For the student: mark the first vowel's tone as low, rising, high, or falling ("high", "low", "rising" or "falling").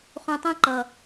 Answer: low